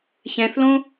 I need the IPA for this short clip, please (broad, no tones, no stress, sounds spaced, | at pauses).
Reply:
ç ɛ̃ θ l õ